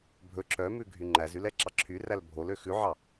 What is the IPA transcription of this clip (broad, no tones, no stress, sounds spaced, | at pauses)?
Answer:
bʱ ɵ ǁ œ m ʉ ɡʱ y ŋ͡ǃ æ z y l ɛ ǁ ɑ ǁʰ y r æ l bʱ o l ø x ʉ ʕ ɑ